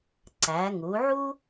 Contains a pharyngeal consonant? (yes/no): yes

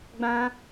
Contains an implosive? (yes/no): no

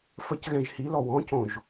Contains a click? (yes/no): no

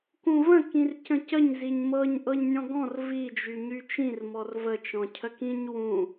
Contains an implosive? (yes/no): no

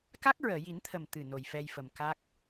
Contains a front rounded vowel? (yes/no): no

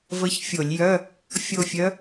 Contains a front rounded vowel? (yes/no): yes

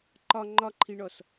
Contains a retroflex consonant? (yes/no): yes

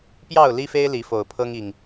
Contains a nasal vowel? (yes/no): no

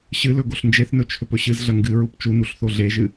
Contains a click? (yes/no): no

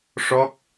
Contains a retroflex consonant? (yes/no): yes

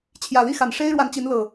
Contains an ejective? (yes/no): no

